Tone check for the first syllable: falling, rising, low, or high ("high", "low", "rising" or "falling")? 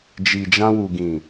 low